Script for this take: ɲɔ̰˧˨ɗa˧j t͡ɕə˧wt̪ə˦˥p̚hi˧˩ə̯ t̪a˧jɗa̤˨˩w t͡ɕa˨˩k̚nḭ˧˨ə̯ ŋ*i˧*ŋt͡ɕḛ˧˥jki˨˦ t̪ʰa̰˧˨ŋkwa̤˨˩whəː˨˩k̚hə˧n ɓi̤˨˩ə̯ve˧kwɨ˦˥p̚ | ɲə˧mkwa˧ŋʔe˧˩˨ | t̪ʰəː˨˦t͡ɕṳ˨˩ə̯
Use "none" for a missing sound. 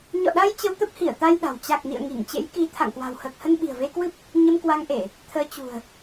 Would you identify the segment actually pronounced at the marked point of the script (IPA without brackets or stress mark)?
i˧˩